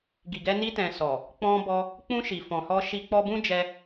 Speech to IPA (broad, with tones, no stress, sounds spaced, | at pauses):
ɡ i˨ ɡ ɛ˧ n i˧ t ɛ̃˨ s ɔ˨ | k͡p ɔ̃˧ b ɔ˧ | k͡p ũ˧ ʃ i˨ f ɔ̃˨ h ɔ˧ ʃ i˧ k͡p ɔ˧ b ũ˦ d͡ʒ ɛ˧